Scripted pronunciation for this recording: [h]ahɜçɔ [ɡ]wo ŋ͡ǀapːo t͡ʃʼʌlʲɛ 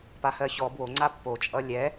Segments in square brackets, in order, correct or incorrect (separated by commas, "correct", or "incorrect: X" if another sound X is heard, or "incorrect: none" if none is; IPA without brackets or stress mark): incorrect: p, incorrect: b